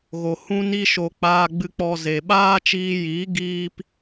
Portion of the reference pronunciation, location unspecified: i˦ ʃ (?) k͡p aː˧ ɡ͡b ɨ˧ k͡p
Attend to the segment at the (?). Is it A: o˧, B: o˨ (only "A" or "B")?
A